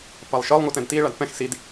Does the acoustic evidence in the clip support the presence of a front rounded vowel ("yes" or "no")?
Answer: no